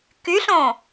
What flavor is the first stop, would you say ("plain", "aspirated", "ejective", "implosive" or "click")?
plain